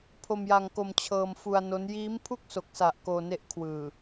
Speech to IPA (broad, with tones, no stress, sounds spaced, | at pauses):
pʰ o˧ m j a˧ ŋ k o˧ m t͡ɕʰ ɤː˧ m f u˧ a̯ n o˦˥ n j iː˦˥ m pʰ u˥˩ k̚ s o˨˩ k̚ s a˨˩ ʔ k oː˧ n e˦˥ ʔ kʰ w ɯː˨˩